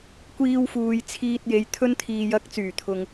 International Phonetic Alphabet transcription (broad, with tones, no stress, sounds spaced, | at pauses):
kʷ iː˧ w f uː˨ j t͡sʰ iː˧ t̚ j e˨˧ j t̪ʰ ɵ˥ n t̪ʰ iː˧ j ɐ˧ k̚ t͡s yː˨˩ t̪ʰ ʊ˨ ŋ